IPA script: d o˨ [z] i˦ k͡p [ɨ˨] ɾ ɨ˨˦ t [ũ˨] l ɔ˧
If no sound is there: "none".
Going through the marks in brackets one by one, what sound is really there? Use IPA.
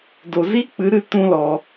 z, ɨ˨˦, ũ˦

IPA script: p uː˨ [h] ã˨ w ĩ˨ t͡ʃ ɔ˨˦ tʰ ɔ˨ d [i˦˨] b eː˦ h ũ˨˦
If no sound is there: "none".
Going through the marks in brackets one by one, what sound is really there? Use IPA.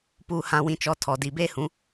h, i˨

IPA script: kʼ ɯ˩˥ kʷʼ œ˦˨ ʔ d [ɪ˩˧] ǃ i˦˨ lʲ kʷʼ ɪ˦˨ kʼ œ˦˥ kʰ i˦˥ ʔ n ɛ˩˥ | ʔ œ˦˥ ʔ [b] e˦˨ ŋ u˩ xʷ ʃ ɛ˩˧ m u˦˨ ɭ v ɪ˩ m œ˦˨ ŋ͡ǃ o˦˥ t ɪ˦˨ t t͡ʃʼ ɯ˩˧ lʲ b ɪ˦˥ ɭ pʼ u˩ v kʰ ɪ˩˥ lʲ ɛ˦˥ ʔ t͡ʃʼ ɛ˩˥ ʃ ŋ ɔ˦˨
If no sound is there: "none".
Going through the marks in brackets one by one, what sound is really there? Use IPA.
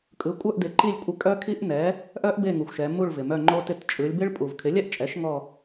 ɪ˩˧, b

